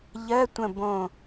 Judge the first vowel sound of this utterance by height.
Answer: mid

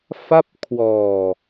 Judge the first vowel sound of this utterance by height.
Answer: low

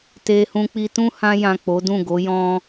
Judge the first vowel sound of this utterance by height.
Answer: mid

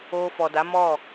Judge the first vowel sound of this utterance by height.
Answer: mid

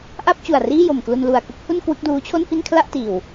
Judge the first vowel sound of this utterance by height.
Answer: low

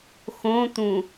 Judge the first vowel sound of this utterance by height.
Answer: mid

